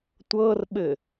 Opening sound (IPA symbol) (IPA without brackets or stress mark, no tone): tʷ